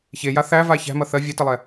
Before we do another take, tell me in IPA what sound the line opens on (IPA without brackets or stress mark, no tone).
ç